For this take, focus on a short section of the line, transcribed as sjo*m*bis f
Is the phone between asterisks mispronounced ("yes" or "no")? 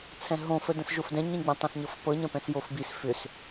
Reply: yes